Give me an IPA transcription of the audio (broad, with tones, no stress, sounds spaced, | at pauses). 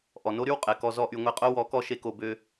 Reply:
ʔ ɔ˨ n o˦ ɾ y˦ w qʼ ɛ˨ k ɔ˧ z ɔ˧ ʔ y˨ ŋʷ e˧ qʼ o˦ w ɔ˨˦ k ɔ˧ ʃ e˦ k o˧ b ø˧